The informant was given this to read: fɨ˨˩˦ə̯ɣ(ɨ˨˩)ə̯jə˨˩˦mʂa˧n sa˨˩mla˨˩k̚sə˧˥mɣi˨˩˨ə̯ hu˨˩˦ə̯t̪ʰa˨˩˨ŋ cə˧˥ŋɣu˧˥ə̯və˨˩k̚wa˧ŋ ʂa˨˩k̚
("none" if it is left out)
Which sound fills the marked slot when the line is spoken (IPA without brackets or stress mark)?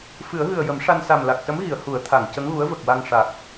ɨ˨˩